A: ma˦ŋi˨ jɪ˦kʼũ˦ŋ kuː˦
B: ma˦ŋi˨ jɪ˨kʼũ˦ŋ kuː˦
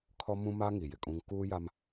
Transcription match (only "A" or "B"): B